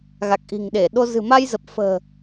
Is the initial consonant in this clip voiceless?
no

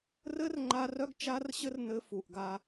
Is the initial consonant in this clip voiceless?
no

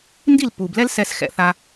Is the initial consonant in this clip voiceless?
no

